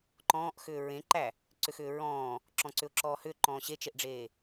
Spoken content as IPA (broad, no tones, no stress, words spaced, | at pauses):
ǃɔ̃ːʔxʏː ɹẽǃæ | ǀʏxʏːɹɔ̃ː | ǁɔ̃ǀʏʊ̯ǁɔːhʏ ǃɔ̃ːɕet͡ʃeʔɖ͡ʐeː